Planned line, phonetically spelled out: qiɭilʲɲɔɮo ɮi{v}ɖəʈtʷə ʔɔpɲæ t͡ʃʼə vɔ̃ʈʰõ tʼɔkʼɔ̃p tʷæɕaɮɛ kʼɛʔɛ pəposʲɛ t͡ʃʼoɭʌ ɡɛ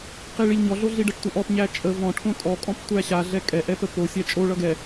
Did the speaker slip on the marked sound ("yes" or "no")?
yes